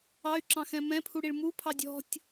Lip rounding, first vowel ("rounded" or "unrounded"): unrounded